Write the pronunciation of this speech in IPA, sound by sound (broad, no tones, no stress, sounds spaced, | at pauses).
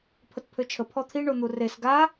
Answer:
pʰ ə t pʰ ø t͡ʃʰ ə pʰ ɔ t̪ʰ i ɳ o n̪ u r e s ɡ a